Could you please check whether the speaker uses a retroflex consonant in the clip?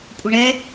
yes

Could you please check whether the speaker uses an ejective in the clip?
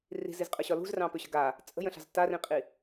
yes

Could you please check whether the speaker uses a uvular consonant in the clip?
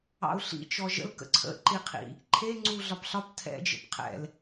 yes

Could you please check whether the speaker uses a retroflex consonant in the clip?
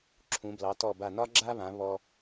no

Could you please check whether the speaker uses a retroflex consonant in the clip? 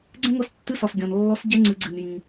no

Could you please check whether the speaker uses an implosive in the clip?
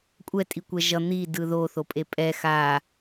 no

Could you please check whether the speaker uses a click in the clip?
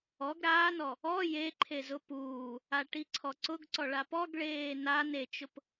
yes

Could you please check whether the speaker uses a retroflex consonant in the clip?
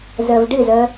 yes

